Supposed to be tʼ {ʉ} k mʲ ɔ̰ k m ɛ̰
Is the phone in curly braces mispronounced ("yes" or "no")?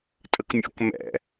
yes